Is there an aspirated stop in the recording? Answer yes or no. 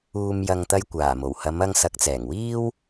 no